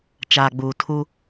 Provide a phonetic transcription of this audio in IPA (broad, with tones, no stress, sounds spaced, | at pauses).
t͡ʃ aː˨ ɡ͡b uː˨ tʰ u˦